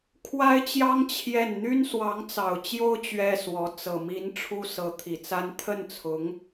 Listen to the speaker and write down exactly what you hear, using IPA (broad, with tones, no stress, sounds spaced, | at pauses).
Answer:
kʰ w a˥ ɪ̯ t͡ɕ j ɑ˥ ŋ t͡ɕʰ j ɛ˥˩ n n̪ y˥ n s w ɑ˧˥ ŋ t͡s ɑ˨˩ ʊ̯ t͡ɕ j o˥ ʊ̯ t͡ɕ ɥ ɛ˥ s w ɔ˧˥ t͡s ɤ˨˩ m i˧˥ n ʈ͡ʂʰ u˥ s ɤ˧˥ t̪ʰ i˨˩ t͡s a˥ n t̪ʰ ə˥˩ n t͡sʰ ʊ˧˥ ŋ